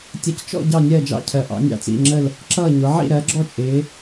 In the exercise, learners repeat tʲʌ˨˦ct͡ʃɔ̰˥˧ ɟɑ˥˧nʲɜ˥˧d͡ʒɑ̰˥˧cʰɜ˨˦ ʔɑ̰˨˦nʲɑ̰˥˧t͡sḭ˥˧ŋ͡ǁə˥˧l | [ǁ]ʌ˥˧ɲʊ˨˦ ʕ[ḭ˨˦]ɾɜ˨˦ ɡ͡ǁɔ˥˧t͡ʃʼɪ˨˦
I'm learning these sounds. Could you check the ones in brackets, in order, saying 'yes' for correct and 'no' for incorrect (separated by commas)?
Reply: yes, no